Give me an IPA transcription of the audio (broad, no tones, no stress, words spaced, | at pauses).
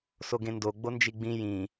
soɡẽndo ɡ͡bond͡ʒiɡ͡bĩ jĩ